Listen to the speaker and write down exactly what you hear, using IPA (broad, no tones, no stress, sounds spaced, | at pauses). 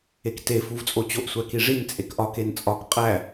e k t e f u v t͡sʼ o t͡ɕ o ʔ sʷ æ k i ʐ i n t͡sʼ e k ʔ ɒ k e n t͡sʼ ɒ k qʼ æ